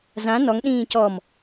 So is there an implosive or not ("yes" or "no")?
yes